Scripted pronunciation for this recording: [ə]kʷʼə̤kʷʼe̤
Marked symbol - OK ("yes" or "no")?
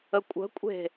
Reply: yes